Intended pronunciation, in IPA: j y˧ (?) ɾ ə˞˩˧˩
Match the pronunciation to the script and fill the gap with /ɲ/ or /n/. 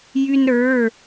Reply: n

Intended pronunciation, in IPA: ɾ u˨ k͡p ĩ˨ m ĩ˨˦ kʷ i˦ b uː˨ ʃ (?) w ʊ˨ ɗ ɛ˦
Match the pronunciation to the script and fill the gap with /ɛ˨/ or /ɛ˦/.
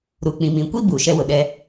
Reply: ɛ˦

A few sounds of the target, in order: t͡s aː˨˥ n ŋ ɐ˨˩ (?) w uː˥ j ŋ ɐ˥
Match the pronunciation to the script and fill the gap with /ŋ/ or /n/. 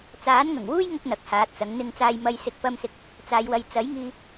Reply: ŋ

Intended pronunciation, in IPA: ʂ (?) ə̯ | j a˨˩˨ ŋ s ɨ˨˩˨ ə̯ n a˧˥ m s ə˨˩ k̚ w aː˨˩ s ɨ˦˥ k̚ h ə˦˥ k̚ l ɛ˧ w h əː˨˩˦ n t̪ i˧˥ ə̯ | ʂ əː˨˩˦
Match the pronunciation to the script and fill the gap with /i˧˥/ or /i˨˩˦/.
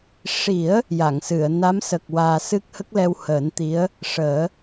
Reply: i˨˩˦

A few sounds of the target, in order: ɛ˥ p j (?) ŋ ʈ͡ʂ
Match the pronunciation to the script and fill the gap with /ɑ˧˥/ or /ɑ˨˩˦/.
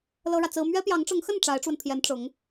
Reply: ɑ˧˥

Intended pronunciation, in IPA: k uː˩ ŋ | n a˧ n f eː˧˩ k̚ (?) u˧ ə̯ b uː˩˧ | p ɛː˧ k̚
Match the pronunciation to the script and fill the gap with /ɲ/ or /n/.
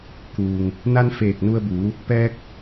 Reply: n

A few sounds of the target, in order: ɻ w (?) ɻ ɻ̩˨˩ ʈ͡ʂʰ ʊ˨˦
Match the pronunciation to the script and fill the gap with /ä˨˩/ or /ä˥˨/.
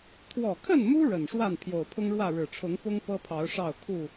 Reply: ä˥˨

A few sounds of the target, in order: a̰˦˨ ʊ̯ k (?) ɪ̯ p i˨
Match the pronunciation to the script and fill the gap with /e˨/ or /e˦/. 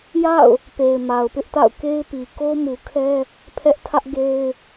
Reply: e˦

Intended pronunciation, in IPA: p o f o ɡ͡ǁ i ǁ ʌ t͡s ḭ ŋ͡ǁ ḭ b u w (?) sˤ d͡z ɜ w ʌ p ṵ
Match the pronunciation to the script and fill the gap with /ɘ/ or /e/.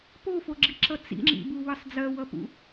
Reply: ɘ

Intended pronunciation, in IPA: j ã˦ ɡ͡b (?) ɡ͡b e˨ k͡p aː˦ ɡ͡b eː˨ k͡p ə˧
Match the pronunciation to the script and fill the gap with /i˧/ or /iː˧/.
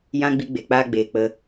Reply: i˧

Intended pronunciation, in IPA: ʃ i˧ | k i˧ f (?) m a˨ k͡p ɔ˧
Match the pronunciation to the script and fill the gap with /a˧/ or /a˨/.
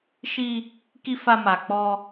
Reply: a˧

